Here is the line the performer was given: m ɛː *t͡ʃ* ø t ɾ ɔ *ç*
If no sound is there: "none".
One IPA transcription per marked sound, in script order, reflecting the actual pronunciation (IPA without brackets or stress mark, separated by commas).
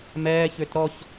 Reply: ç, ç